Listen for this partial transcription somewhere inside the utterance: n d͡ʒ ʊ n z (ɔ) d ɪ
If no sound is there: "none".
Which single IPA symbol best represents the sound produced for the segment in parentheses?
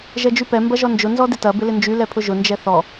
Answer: ɔ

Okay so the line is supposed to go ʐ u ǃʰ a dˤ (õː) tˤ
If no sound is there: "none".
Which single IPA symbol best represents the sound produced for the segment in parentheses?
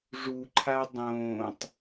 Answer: õː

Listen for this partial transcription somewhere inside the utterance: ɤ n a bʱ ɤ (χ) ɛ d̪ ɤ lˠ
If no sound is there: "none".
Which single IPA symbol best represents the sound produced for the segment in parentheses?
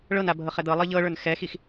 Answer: χ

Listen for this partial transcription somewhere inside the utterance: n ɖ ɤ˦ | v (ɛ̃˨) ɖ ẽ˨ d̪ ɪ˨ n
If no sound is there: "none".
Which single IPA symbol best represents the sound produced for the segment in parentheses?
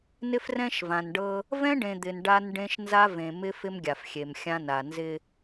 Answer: ɛ̃˦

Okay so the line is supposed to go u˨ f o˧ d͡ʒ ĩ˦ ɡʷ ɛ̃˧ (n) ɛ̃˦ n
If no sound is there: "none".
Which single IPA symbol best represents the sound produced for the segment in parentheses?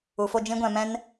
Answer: m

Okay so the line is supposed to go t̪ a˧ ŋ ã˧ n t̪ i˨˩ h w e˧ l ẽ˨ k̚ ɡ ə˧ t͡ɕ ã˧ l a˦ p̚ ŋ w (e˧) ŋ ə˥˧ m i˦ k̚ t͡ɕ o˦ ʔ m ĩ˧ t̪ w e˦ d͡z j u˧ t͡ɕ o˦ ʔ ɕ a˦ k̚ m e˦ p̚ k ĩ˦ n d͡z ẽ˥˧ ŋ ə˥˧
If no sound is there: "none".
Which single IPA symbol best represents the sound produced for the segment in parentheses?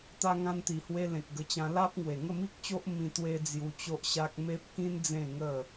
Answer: e˨˩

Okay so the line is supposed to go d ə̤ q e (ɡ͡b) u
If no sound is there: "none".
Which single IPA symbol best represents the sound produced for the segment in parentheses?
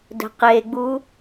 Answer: ɡ͡b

